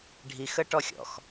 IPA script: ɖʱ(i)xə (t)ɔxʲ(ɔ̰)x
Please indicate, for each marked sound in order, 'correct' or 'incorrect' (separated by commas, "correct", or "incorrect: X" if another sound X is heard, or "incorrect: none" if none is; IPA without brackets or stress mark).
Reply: correct, incorrect: ʈ, correct